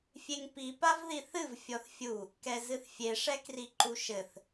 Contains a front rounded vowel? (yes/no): no